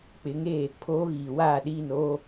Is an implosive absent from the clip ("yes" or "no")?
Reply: no